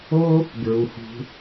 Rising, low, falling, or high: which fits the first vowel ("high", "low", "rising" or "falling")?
high